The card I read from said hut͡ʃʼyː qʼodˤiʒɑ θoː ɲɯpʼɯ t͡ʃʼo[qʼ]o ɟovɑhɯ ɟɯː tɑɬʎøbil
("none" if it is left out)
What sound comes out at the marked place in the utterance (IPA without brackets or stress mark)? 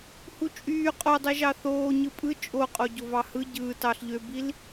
qʼ